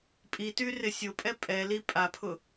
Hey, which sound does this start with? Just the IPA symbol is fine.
pʼ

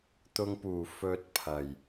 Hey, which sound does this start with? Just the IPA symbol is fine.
t̪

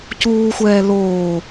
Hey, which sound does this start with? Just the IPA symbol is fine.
c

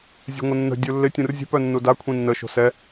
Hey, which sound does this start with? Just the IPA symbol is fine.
zʲ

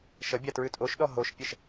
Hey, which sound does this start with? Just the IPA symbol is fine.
ʃ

